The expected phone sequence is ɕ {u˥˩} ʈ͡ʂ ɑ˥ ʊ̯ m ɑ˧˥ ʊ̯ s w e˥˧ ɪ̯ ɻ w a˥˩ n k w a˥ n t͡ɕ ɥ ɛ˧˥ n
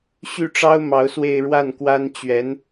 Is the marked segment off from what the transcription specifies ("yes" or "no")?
yes